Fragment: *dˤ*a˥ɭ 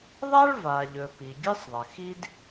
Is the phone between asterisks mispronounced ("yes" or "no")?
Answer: yes